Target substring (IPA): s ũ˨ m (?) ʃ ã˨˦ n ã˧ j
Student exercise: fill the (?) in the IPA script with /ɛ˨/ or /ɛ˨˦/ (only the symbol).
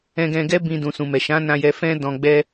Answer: ɛ˨